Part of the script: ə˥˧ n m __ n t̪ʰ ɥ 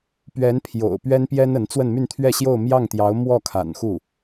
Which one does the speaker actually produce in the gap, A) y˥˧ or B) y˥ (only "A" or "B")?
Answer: A